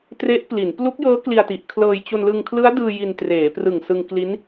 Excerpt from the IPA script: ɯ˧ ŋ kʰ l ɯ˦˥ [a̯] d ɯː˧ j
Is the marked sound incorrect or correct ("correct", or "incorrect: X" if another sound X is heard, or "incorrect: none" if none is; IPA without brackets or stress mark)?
correct